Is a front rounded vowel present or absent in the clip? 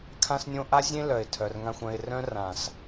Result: present